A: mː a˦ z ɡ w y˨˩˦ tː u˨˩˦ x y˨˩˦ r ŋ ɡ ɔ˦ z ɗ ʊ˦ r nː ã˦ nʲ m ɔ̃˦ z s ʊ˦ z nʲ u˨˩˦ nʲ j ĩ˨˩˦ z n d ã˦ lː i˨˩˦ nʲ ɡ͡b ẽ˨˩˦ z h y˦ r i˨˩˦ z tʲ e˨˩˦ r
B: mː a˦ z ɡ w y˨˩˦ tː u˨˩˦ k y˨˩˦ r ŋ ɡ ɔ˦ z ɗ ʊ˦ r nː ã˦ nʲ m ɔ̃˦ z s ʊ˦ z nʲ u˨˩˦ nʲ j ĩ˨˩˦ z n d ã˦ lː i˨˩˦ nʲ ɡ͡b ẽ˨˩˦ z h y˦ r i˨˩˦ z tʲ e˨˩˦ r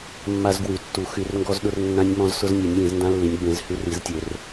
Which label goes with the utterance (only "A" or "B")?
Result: A